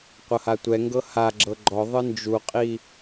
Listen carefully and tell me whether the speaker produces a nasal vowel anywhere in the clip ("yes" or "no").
no